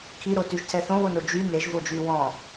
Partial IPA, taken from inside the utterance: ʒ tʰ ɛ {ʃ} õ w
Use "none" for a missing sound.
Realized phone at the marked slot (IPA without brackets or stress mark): θ